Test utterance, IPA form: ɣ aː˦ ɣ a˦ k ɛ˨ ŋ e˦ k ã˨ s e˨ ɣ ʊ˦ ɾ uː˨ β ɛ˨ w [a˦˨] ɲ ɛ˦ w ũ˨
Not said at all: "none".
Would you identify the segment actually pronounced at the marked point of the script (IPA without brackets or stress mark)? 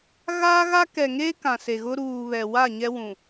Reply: a˦˨